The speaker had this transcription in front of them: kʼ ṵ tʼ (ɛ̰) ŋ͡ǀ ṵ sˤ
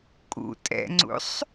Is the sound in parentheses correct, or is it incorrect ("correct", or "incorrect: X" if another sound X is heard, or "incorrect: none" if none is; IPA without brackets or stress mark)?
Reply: correct